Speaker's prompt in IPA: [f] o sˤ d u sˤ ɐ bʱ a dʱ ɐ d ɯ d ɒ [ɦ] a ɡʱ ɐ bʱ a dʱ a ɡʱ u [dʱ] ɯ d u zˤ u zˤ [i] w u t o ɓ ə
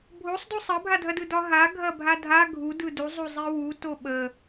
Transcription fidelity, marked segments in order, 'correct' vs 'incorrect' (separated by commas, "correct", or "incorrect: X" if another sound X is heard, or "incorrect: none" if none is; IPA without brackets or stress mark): incorrect: bʱ, correct, incorrect: d, correct